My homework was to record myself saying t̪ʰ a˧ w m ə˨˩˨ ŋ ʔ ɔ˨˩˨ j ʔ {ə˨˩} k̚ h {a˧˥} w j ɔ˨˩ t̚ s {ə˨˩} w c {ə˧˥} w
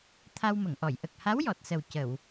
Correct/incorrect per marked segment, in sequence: correct, correct, correct, incorrect: ə˨˩˨

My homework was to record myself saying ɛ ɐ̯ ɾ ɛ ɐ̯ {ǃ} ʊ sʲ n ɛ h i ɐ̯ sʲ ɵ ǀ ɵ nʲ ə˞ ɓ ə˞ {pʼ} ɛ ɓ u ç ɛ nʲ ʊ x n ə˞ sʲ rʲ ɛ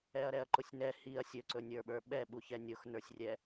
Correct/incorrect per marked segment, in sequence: correct, incorrect: ɓ

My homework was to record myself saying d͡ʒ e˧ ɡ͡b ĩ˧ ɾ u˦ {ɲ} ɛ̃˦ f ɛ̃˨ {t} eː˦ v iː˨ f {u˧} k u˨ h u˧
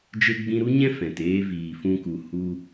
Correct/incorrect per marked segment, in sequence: correct, correct, incorrect: ũ˧

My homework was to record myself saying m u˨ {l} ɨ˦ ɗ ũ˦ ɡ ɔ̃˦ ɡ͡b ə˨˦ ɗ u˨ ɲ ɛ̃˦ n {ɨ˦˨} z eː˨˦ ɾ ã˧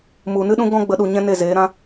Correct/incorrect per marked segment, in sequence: incorrect: n, incorrect: e˦˨

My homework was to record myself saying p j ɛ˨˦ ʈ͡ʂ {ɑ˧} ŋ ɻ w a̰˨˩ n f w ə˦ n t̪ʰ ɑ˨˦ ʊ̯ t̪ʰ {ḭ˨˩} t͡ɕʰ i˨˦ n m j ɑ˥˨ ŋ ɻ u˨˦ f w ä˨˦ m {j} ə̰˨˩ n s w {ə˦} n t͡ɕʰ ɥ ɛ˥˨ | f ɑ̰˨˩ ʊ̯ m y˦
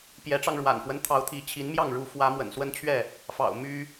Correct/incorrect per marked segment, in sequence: correct, incorrect: i˨˦, incorrect: w, correct

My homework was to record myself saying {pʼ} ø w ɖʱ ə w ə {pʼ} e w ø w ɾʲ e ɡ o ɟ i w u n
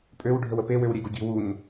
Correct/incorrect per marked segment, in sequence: correct, incorrect: p

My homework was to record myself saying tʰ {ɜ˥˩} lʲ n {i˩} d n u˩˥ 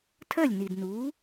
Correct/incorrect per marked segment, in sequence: correct, correct

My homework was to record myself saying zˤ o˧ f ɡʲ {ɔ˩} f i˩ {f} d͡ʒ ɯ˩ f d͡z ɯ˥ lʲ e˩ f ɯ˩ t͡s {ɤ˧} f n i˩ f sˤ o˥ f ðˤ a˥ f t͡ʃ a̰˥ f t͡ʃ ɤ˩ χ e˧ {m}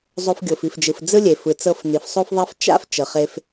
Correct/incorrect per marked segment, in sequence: incorrect: o˩, correct, correct, incorrect: f

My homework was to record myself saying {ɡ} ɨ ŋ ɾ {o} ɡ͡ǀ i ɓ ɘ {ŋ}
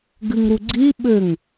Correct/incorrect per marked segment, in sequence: correct, incorrect: u, correct

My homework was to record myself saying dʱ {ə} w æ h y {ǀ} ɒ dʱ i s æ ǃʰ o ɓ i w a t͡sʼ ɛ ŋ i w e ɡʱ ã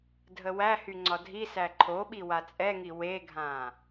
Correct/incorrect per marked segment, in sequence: correct, incorrect: ŋ͡ǀ

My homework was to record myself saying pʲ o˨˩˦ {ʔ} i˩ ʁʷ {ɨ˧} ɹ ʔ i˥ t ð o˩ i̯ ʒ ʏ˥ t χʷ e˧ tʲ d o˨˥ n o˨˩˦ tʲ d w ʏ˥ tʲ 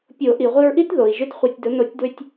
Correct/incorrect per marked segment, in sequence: correct, correct

